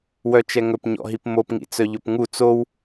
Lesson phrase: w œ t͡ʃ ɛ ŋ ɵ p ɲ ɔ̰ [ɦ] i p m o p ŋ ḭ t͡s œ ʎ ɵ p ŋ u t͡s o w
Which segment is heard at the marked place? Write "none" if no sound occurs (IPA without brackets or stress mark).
ɦ